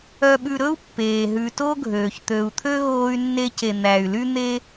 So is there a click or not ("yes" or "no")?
no